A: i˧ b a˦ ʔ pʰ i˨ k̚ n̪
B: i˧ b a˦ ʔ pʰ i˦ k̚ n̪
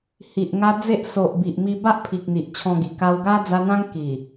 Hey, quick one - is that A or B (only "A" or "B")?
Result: A